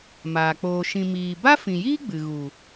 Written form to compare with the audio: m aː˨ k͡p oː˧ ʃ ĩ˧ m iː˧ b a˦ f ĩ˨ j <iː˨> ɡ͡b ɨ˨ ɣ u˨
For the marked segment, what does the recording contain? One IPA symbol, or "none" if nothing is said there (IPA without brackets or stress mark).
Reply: iː˦